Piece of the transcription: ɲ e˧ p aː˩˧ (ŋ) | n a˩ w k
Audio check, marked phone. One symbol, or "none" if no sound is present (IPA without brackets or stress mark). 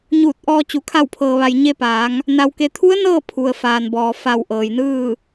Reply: ŋ